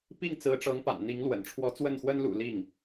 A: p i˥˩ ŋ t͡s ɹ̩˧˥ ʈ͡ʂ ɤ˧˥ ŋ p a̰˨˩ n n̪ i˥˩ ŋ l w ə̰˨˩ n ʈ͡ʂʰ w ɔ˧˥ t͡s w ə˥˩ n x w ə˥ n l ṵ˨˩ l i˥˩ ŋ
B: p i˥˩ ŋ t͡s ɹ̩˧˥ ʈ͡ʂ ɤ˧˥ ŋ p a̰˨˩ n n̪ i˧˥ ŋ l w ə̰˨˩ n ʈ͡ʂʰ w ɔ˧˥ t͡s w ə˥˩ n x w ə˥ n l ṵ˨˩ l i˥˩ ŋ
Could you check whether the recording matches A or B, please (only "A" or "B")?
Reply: B